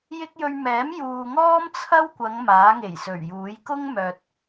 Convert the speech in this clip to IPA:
j ɪ˥ k̚ j ɵ˧ ɥ m ɛː˨˥ m j uː˨ ŋ ɔː˥ m t͡sʰ ɐ˥ w kʷ ɐ˨˧ ŋ m aː˨˥ ŋ e˨˩ j s ɵ˨˩ ɥ j uː˨˥ j k ʊ˥ ŋ m œː˨ t̚

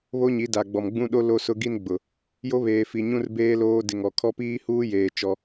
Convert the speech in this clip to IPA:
β o˦ ɲ i˨˦ d a˨ ɡ͡b ɔ˨ m ɡ͡b ũ˦ ɗ o˦ l o˦ s ʊ˦ ɡ i˦ n ɡ͡b ʊ˨ | j o˦ β eː˨ f i˨ ɲ ũ˦ r b eː˦ l oː˦ d ɪ˨ ŋ ɔ˨ kʰ ɔ˦ p iː˦ h uː˦ j eː˨ t͡ʃ ɔ˦

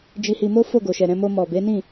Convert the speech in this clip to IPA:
d͡ʒ i˧ h i˧ m o˦ f o˦˨ ɡ o˨ ʃ ɛ˨ ɾ ɛ̃˧ m o˧ m ɔ˨ b e˨˦ n ĩ˦˨

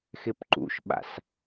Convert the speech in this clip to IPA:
x ɪ p ǃ ṵ ʃ ɓ a̰ s

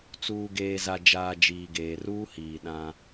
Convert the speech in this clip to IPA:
t͡s uː˨ ɡ eː˨ z a˨ d͡ʒ aː˨ d͡ʒ iː˨ ɡ eː˨ r uː˦ h iː˨ ɗ ã˦

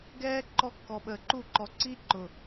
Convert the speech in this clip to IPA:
ɡ ɛː˦ ǃ ɔ˦ kː ɔ˨ ɓ əː˨ ǃ u˦˨ ǃ ɔ˨ ǀ i˦ ǃ ʊ˨

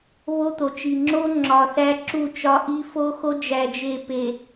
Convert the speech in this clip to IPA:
β o˦ t̪ o˨ t͡ʃ i˨ ŋ͡ǁ o˦ ŋ͡ǁ ɒ˨ θ æ˦ ǁ u˦˨ t͡ʃ ɒ˦ ʔ i˦ f o˦ x o˦ d͡ʒ æ˨ d͡ʒ e˨ p e˨

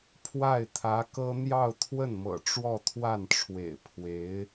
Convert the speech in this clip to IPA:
pʰ w a˥˩ ɪ̯ t̪ʰ ä˧˥ k ɤ˥ n̪ j ɑ˥˧ ʊ̯ t̪ʰ w ə˥˩ n m ɤ̰˨˩ ʈ͡ʂ w ɔ˥˧ t̪ʰ w a˥˩ n ʈ͡ʂʰ w ḛ˨˩ ɪ̯ pʰ w e˧˥ ɪ̯

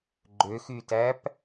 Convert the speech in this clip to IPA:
ɡ͡ǃ ø x y t æ p

